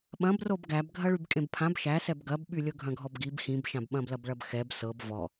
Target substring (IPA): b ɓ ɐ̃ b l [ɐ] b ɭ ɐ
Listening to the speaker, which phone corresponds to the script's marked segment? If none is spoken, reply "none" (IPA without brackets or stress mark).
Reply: ɐ